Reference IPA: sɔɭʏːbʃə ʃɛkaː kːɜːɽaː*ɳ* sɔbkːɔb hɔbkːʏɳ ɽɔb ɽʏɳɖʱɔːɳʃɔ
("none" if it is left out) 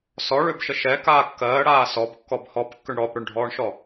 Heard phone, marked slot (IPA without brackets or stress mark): none